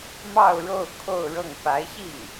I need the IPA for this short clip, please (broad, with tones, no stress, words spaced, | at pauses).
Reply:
mɑ˥˧ʊ̯ɻo˥˧ʊ̯ kʰo˥˧ʊ̯ɻɤ˥˩ŋ pa˧˥ɪ̯ɕi˥˩ŋ